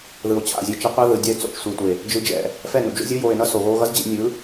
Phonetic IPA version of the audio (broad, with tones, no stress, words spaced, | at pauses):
ðɯ˨o̯t͡ɕʰa̰˦˨zʲe˧ t͡ʃɛ˧qʷa˦ ðɯ˨dʲa˦e̯ t͡so̰˨t͡ʃsʷi˨tʷe˨ | d͡ʒɯ˧d͡ʒɛ̰˨ | fɛ˦˨nṵ˨d͡ʒo̰˦zʲu˦ joː˨e̯nʌ˧ so˨ɣoː˧ɣʌ˦z d͡ʑḭ˧ nʲɯ˨˦